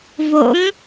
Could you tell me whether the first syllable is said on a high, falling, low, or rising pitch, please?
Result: rising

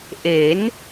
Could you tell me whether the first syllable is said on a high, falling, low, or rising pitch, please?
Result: rising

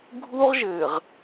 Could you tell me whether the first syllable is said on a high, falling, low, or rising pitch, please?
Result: high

